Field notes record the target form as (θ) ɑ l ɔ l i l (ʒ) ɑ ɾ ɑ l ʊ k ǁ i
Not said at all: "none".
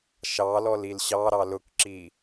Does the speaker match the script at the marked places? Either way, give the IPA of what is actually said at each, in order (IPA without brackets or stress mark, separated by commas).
ʃ, ɕ